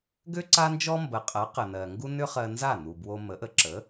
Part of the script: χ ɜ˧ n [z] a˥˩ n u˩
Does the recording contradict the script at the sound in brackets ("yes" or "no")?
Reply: no